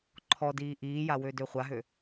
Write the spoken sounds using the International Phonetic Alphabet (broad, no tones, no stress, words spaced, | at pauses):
ǃʰɔdiː ʔiːjawødø χʷaɦø